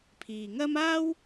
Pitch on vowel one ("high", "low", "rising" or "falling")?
low